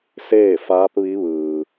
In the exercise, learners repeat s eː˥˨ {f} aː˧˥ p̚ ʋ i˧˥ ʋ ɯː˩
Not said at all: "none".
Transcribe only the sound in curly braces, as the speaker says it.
f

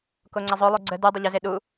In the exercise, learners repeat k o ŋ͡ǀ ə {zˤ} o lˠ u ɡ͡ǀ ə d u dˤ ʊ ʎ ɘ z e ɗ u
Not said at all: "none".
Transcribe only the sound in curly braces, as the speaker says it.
zˤ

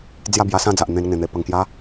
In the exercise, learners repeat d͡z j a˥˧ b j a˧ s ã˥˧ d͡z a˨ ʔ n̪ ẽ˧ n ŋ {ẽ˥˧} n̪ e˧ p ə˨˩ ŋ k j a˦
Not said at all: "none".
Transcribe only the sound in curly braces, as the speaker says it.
ẽ˨˩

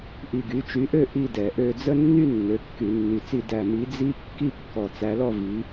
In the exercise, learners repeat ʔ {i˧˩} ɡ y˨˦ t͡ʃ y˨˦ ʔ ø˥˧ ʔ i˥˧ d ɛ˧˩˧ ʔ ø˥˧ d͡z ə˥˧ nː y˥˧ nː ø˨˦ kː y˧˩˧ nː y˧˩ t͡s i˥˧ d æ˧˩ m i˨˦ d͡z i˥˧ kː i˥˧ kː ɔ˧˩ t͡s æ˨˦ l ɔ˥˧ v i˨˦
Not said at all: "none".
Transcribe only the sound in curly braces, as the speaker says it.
i˧˩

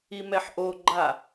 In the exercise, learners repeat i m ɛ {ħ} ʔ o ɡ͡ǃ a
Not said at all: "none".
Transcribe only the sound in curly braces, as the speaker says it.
ħ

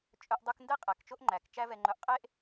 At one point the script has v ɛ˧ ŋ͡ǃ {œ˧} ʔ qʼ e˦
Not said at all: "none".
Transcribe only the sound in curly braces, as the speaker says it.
œ˧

